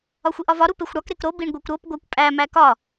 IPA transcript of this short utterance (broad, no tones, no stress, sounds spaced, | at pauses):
ɒ xʷ i ʔ ɒ v ɒ ɾ u p e xʷ ɽ ɒ k ɾ e k ɾ o b i ɳ ɡʷ e kʷ ɾ o p ɡʷ æ kʷ pʼ æ m æ k ɒ